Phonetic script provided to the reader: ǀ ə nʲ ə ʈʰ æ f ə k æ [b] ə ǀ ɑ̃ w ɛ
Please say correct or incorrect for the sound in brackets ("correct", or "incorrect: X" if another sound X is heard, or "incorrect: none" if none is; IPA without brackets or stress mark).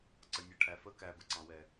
correct